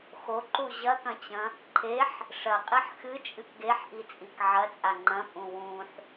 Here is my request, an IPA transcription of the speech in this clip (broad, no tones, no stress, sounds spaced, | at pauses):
x o ǃ u ʑ ɐ k ɐ̃ t͡ɕ ɐ̃ | ǃʰ e ħ | ʂ ɐ qʼ i ħ x ɨ t͡ʃʼ ɨ k ɡ e ħ ʔ i t͡sʼ i k ʕ ɐ t͡sʼ a ŋ͡ǃ ɐ̃ pʼ ũ w ũ ħ